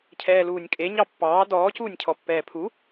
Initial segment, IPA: cʰ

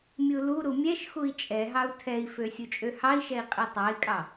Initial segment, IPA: mʲ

